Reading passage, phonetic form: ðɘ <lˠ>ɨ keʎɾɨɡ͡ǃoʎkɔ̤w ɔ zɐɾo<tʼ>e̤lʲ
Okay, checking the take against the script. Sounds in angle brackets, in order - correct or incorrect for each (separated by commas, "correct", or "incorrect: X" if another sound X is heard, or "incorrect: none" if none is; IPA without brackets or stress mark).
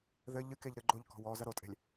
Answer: incorrect: ʎ, correct